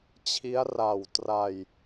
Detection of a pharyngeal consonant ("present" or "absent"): absent